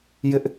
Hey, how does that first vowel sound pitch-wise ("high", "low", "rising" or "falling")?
high